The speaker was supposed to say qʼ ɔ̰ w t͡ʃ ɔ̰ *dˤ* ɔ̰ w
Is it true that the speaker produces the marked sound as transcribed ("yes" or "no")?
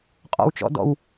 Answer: no